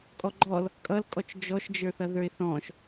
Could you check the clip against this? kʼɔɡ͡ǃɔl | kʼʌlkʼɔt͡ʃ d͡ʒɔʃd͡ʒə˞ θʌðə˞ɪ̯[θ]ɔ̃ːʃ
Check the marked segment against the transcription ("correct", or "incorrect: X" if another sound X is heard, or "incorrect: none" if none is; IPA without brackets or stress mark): correct